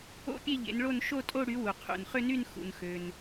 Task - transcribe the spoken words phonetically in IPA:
o̰˥˧ pʲ e˥˧ ʎ ḛ˨˦ n ɭ o˥˧ n ʃ o˥˧ tʼ o˥˧ ɽ y˨˦ w u˩ qʰ ṵ˩ n χ ʏ˥˧ n y˥˧ n x ṵ˩ n x ø˩ n

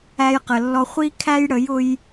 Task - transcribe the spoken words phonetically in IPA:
æ˧ j q ə˨ lː ɔ˧ χʷ i˦ kʰ æ˦ j ɽ ə˨˦ j ʊ˧ j

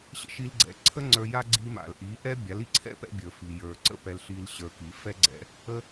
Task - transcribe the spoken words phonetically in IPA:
ɕ ə̰˧ ʃ i˧ l ɡ͡ǀ ɛ̰˩˥ ǀʰ ə˥ ŋ͡ǀ ə˞˧ j a˥ ɡ͡ǀ i˧ m a̰˩ l ʔ i˩˥ ʔ ɛ˥ bʲ a˩˥ l i˩˥ ǀʰ ɛ̰˥ p ɛ̰˧ bʲ ə˞˩ f i˩ j ə˞˩ ǀ ə̰˥˩ p ɛ˧ l ɬ i˧ l ɕ ə˞˧ k i˩˥ f ɛ˥ ɡ͡ǀ ɛ̰˧ | ə˧

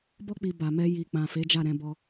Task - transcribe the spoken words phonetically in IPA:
b ɔ˧ k͡p i˨ b a˨ m ɛ˧ j i˨ k͡p ã˨ f e˨˦ d͡ʒ a˦˨ ɾ ɛ̃˧ b ɔ˧

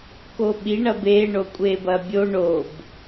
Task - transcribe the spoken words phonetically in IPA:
k o ɓ i ɳ ɐ b e ɳ o kʷʼ e b ɐ bʲ o ɳ o b

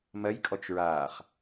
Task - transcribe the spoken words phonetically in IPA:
m ɜ j kʼ ɔ t͡ʃ ɹ aː χ

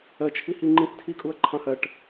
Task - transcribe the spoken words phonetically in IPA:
ɜ t͡ʃʰ i h i ŋ͡ǃ ĩ s tʰ i kʼ u ɐ̯ ǃʰ ɑ̃ h ɜ ʈ

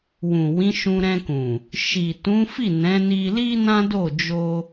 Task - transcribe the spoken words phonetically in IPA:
w ũ˨ w ĩ˨˦ ʃ ũ˧ ɾ ɛ̃˧ k ũ˨ | ʃ i˨ t ũ˨˦ f i˦˨ n ɛ̃˨˦ n i˧ l i˦ n ã˦ d o˦˨ d͡ʒ o˧

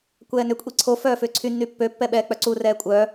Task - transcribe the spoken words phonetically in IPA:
kʷ ɛː n ʏ kʷʼ i ǀʰ o f œː f ʏː ǀʰ y nː y pː ø pː ɛ ɓ ɛː k͡p œ ǀ u r ɛː kʷʼ œː

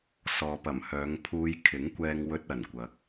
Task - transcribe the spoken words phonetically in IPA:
s ɔː˨ p ɐ˨˩ m h œː˨˧ ŋ pʰ uː˧ j kʰ ɪ˨˥ ŋ kʷ ɛː˧ ŋ w ɵ˧ t̚ ɐ˨˩ n kʷ ɐ˨˥ k̚

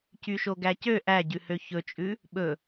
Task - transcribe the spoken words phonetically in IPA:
c y ʃ o ɡ æ c ø ʔ æ ɟ ʉ h ø ç ɵ t͡ʃʼ ʉ | ɓ ɵ

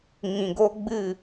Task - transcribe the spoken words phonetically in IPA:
ŋ ĩ˨ ɡ o˦ ɡ͡b ɨ˦˨

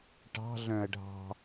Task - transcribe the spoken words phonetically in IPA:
ʈ ɑ̤ ɮ œ̃ ɐ̯ ɖʱ ɑ̤

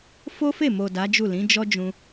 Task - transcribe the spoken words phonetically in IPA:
f o˦ f e˦˨ m o˨ d a˨˦ d͡ʒ u˦˨ l ĩ˨˦ d͡ʒ ɔ˦ d͡ʒ ũ˧

